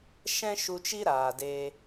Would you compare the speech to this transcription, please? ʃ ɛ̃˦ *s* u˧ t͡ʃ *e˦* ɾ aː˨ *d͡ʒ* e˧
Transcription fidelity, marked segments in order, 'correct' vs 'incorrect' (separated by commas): incorrect, incorrect, incorrect